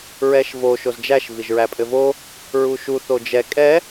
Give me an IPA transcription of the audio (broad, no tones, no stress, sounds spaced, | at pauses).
ɹ ɛ ʃ v o ʃ o z d͡ʒ æ ʃ v i ʒ ɹ æ pʼ ɘ v o | ɹ u ʃ u θ o d͡ʒ ɛ kʼ ɛ